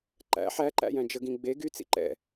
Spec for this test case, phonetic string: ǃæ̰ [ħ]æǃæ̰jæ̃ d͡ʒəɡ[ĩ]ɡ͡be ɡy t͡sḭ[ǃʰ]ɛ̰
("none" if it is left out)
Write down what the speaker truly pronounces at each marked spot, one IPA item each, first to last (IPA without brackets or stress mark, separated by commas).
ħ, ĩ, ǃ